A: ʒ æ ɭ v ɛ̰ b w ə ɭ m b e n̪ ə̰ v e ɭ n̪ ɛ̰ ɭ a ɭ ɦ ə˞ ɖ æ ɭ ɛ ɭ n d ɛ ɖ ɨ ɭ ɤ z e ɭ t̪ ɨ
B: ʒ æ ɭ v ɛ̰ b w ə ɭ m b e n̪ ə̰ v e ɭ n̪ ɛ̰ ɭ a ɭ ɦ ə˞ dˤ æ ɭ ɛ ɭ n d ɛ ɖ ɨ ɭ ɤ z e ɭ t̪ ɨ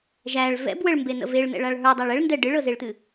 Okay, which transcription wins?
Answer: B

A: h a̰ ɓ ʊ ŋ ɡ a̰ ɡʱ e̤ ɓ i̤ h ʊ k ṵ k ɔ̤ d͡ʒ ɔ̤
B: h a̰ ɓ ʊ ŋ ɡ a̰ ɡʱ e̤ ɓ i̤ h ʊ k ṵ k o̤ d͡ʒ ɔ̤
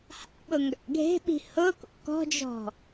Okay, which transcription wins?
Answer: A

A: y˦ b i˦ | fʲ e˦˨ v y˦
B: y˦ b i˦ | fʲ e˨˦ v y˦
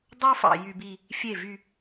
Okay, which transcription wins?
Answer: A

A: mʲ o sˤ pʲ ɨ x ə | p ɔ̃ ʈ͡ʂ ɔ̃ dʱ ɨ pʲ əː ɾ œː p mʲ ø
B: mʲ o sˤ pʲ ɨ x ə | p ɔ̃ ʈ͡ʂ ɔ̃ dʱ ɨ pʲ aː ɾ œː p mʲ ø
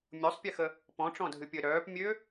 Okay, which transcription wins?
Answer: A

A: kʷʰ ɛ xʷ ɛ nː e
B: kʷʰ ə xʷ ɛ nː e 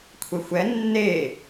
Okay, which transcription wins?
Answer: A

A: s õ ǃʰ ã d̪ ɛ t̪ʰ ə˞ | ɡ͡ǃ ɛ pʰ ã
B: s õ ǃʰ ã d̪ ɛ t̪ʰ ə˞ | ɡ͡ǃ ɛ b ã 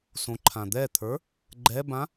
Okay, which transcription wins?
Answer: B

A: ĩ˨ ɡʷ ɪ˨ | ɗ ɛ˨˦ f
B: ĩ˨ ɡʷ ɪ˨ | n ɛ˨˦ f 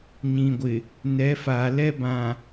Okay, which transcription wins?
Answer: B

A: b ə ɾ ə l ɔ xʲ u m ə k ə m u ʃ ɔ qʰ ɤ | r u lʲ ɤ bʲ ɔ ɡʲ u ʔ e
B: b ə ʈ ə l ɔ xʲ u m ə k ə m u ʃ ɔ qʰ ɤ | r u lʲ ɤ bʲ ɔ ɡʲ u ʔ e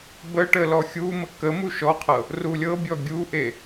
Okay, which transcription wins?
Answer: B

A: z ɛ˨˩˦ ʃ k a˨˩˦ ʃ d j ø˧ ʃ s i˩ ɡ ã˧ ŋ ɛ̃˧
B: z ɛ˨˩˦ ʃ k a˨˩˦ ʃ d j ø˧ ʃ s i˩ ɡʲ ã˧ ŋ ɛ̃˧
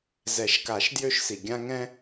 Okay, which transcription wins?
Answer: B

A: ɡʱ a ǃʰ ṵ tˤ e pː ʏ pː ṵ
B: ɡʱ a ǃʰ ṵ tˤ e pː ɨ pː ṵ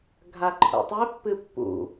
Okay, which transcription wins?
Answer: B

